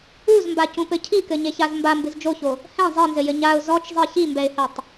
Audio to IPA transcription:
uzmbacũpɘ cʰikɘɲeçaz mbambɨz d͡ʒoço | hɛ̃ zˤinzɘjɘ ɲaʊ̯ zɔt͡ʃzˤi çimbɛɪ̯hɛtˤ

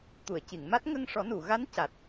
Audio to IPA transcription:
t̪u˨˩˨ə̯ci˨˩˨ŋma˦˥t̚ ŋə˧ŋʂɔ˨˩˦nu˨˩˨ɣa˧˥n ca˨˩t̚

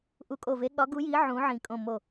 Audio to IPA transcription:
ʔu˧˩kʼo˧˩ ve˨˥ɠɒ˨˥ ɡu˨˥ji˨˥ ʕũ˨˥ʕĩ˧˩ kʼõ˧˩mo˧˩

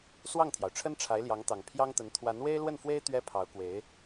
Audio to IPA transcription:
swɑ˥˩ŋt̪ʰjɑ˩ʊ̯ʈ͡ʂʰə˥n ʈ͡ʂʰa˧˥ɪ̯ljɑ˧˥ŋt̪ɑ˨˩ŋ pʰjɑ˥ŋt̪ə˧˥n t̪ʰwa˧˥nwe˥ɪ̯lwə˥˩nfwe˥ɪ̯ t̪ɥɛ˥pʰɑ˧˥ʊ̯kwe˧˥ɪ̯

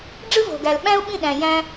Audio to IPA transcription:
ɖ͡ʐɯ˦vo̤˨ɡæ˨l ɓæ̃˦u̯ɓĩ˦˨ ɗæ̃˨jæ̃˧

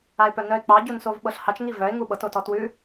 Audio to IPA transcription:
aɪ̯pœnœɪ̯k͡pɑ ɟunsovɓɤɬhɑt͡ʃ ŋivœɪ̯ ŋuɓɤt otɔtwʉ

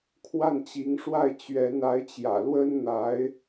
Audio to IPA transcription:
kʰwa˥˩nt͡ɕi˧˥ŋʂwa˥˩ɪ̯ t͡ɕɥɛ˧˥na˧˥ɪ̯t͡ɕjä̰˨˩lwə˥n n̪a˧˥ɪ̯

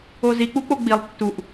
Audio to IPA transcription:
ozi k͡puk͡poɡ͡bilˠ tːuʔ

